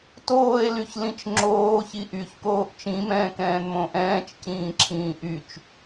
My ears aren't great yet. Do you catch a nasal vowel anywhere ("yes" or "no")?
yes